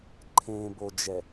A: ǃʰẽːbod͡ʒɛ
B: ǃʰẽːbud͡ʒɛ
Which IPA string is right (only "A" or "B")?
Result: A